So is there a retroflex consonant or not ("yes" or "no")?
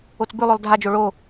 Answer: yes